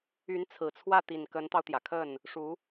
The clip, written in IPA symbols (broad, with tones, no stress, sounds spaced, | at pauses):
y˧˥ n t͡sʰ ɹ̩˨˩ t͡sʰ w ä˥˩ t̪ i˨˩ n k ə˧˥ n t̪ ɑ˧ ʊ̯ t̪ j ä˩ kʰ ə˥˩ n | ʂ u˧˥